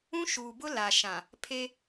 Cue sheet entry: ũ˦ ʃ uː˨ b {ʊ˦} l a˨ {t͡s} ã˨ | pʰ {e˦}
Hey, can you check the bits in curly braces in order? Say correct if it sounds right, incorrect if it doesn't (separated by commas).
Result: correct, incorrect, correct